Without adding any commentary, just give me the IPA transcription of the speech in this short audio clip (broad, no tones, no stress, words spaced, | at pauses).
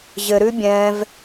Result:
ʑɘɾʉ bʲɛ̃v